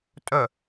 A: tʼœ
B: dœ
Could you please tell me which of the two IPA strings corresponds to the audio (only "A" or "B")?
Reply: A